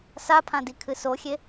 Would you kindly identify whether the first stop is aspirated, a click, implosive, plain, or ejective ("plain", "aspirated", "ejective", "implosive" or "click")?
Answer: aspirated